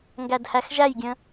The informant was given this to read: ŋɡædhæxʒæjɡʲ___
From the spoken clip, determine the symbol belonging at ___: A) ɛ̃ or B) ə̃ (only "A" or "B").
B